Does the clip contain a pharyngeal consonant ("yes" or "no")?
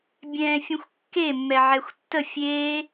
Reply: yes